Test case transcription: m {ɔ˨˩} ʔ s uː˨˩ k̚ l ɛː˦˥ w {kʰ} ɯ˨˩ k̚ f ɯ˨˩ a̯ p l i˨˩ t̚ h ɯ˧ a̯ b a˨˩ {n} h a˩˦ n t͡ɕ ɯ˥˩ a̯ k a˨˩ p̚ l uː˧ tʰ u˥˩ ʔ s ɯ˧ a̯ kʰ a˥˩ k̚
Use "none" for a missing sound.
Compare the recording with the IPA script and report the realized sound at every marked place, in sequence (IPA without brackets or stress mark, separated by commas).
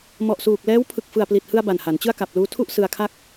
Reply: ɔ˨˩, pʰ, n